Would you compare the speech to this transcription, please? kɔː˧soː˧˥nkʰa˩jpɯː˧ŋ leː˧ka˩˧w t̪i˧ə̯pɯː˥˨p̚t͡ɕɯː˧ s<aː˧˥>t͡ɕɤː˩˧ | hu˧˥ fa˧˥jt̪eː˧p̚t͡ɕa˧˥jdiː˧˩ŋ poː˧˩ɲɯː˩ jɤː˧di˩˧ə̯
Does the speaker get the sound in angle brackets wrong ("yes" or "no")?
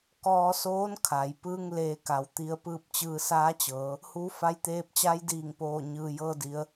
no